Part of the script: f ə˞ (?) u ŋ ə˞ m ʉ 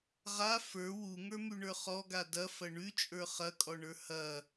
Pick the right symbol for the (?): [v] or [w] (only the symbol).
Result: w